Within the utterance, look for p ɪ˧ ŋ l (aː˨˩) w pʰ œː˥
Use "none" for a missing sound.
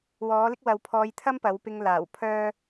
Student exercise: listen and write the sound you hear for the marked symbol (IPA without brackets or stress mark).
aː˨˩